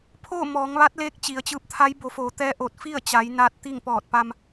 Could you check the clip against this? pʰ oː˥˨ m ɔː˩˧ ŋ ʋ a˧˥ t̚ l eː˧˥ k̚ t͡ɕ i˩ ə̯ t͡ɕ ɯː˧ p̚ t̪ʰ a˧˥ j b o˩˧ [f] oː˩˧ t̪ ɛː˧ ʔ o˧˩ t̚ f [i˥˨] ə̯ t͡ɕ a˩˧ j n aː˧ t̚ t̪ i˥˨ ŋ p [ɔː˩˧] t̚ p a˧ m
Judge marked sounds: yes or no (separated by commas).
yes, yes, no